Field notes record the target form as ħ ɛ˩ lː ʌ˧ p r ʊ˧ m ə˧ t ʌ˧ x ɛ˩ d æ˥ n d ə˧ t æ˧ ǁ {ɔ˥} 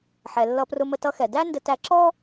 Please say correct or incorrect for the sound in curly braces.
correct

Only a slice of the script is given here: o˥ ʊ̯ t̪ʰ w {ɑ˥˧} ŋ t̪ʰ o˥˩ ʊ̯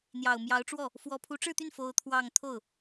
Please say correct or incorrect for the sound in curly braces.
correct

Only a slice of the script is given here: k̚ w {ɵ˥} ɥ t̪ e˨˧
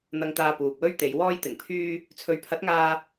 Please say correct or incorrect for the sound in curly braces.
correct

